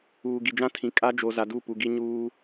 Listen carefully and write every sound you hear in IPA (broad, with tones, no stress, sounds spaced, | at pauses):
uː˨ ɡ i˨ d͡ʒ ã˦ tʰ ĩ˨ kʼ a˦ d͡ʒ o˨ z a˨ d u˦˨ p u˨ ɡ i˦ ɲ uː˦